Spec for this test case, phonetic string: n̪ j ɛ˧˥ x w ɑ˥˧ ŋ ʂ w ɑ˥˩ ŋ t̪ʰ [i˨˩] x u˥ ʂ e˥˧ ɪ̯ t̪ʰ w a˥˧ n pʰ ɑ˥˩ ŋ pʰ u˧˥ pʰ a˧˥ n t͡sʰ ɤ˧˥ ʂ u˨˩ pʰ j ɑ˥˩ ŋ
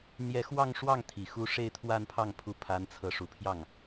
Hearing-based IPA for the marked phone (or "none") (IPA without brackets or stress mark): i˨˩